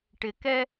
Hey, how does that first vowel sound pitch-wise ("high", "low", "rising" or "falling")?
low